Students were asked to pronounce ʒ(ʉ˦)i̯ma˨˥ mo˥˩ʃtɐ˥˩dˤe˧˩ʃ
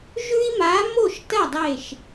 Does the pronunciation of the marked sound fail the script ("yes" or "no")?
no